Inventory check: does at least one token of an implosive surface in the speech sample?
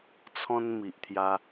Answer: no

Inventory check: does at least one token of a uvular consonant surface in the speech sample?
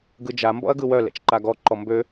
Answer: no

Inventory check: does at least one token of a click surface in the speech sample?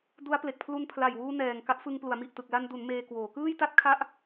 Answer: no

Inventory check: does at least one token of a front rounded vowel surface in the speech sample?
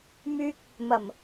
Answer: yes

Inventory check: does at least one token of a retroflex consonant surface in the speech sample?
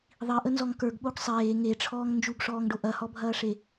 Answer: yes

